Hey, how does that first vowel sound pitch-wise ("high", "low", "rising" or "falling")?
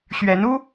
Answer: rising